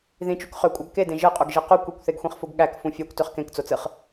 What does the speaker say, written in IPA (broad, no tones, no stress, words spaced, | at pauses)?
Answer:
ðĩt͡ʃuk χøkʷʼɑɡ kedẽ ʒɯqʼuɡʒi qukʷ ikʷθeɡxʷĩχfuɡ ɠækfũ fʲɑkʷtøχ kẽkt͡sot͡sɯχ